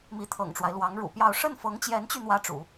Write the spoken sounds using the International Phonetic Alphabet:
mi˧˥t̪ʰɤ̰˨˩ŋʈ͡ʂwa˦ɪ̯ lwɑ˧˥ŋɻṵ˨˩pjɑ˥˧ʊ̯ ʂə˥˩nfɤ˧˥ŋt͡ɕjɛ˧˥nt͡ɕy˧ n̪wä˥ʈ͡ʂṵ˨˩˦

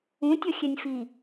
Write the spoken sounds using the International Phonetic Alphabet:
ũtʲʌxʲɛnʲ fi

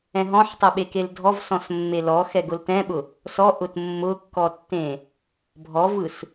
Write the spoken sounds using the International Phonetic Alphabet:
ɛ̃ɦɔ̃ħtˤɛɓe keldʱɔv sɔ̃smːelɔ xɛɡʊltɛ̃ɓʊ | sɔ ʔʊtmːʊkːɔtːẽ | bʱɔvɯs

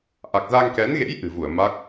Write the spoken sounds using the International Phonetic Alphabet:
ʔa˨˩k̚za˧ŋkɛ˨˦nɣḛ˧˥j ʔɨ̤˨˩vu˧˩ə̯ ma˦˥k̚

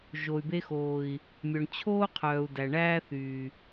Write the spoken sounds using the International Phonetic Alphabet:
ʒo˨y̯be˧xoː˨i̯ | mʲœ˨ɳt͡ɕʰoː˦qʰœː˨u̯dæ˨ ɳæː˦θyː˨

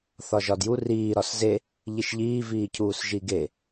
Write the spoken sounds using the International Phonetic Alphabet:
θɒʒɒdju riː ɾɒsze | ʎiʃʎiː viːcʰuːsʒiɡe

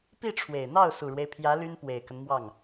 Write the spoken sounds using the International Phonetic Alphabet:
pi˥˩ʈ͡ʂʰwe˨˩ɪ̯n̪ɑ˥˩ʊ̯ su˨˩ɻwe˦ɪ̯pʰjä˧˥ ly˥n pwe˨˩ɪ̯kə˦nmwɑ˥˩ŋ

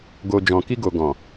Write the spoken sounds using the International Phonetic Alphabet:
ɡo˨d͡ʒɔ̃˨ki˧ɡo˨ ɡɔ̃˨

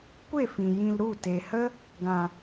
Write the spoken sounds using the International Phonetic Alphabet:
kʷe˦˨fĩ˨ jĩ˧l ɾu˦˨ te˨hə˦ | ɡã˨

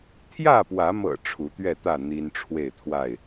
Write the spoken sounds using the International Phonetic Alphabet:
t̪ʰjä˥˨pwä˨˦mɤ̰˨˩ ʈ͡ʂʰu˨˦t̪ɥɛ˥˨t̪ä˥˨ n̪i˦n ʈ͡ʂʰwe˥˨ɪ̯t̪ʰwa˥˨ɪ̯

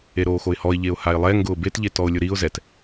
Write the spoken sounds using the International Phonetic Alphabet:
eɾoːxoɪ̯hɔɪ̯ ʎeʊ̯haɪ̯lˠɛ ŋɡʊːbet ʎetɔʊ̯lʲʊɾiʊ̯ zɛt

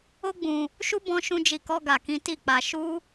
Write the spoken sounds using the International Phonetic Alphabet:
o˦ɡ͡bũ˧ | ʃu˦ bɔ̃˦ʃũ˦d͡ʒi˧kɔ˦ ɡa˧kĩ˦ ti˦˨k͡pa˧ ʃu˦

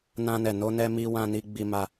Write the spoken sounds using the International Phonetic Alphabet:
nã˧nɛ˨ no˧nɛ˧ mi˧wã˧ni˧ ɡ͡bi˧ma˧

